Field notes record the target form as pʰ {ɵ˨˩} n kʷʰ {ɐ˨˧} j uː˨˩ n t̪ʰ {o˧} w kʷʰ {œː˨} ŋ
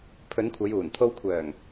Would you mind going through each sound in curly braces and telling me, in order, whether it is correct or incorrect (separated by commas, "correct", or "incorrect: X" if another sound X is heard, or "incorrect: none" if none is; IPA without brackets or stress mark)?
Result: incorrect: ɵ˨˧, correct, correct, incorrect: œː˨˩